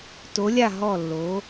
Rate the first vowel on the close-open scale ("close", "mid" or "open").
mid